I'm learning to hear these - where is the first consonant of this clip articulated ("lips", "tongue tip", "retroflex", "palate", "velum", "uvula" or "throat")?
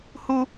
throat